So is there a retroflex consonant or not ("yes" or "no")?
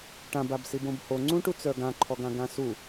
yes